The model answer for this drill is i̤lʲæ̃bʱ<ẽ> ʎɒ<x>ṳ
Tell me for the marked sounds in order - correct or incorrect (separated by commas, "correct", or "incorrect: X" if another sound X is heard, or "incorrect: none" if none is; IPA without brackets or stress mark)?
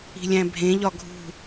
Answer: correct, incorrect: ɡʱ